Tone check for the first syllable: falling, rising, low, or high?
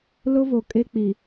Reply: high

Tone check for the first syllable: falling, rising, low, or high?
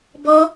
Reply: high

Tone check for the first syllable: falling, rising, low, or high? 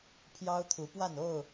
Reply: high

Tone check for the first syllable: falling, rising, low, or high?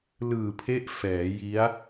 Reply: low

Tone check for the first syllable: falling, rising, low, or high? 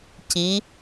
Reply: rising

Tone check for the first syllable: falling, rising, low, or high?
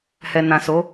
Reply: low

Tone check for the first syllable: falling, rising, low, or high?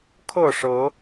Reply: falling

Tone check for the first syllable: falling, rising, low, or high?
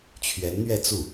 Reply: rising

